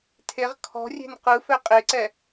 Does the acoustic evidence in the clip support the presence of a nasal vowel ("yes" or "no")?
no